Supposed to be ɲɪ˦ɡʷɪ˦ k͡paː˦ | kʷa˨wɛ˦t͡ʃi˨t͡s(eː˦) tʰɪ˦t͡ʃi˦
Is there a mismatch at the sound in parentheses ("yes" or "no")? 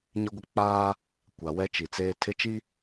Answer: no